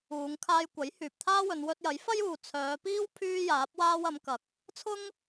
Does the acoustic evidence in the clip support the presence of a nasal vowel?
no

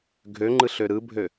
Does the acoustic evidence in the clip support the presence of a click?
yes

